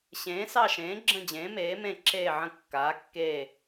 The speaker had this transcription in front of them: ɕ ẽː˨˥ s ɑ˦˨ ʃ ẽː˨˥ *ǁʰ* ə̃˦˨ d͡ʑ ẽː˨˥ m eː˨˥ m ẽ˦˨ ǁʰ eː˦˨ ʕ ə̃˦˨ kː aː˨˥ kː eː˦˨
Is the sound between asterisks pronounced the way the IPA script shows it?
no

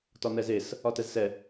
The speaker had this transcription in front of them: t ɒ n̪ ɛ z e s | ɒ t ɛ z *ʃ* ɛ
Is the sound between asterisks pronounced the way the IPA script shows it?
no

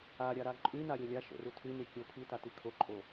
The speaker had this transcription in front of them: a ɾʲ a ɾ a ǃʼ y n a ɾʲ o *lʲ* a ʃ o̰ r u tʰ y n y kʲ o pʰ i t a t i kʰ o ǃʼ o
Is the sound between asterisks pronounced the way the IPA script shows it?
yes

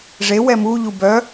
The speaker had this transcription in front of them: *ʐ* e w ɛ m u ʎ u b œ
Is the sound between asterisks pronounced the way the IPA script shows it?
yes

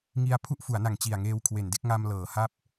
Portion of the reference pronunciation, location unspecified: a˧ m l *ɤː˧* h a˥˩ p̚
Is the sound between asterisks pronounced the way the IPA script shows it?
no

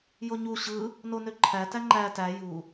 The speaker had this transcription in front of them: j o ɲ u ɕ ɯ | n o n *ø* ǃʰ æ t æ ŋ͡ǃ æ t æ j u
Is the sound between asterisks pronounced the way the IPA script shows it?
yes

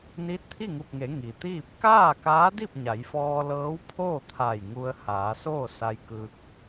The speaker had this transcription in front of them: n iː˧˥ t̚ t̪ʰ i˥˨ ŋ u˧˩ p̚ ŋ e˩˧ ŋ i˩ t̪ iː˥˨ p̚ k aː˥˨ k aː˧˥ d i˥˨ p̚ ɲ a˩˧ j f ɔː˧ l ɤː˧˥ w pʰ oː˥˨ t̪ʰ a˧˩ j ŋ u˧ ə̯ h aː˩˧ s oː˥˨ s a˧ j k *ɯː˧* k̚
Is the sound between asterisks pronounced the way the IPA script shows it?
yes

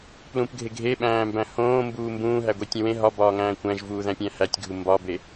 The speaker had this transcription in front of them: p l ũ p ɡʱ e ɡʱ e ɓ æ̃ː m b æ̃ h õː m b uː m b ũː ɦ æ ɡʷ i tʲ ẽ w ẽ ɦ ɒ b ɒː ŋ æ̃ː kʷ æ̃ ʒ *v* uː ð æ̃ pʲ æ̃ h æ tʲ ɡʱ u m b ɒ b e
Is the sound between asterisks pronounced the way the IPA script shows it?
yes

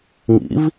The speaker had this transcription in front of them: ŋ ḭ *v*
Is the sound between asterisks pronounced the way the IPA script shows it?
yes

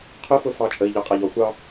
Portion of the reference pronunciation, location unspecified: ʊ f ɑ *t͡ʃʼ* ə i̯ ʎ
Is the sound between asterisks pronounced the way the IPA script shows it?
yes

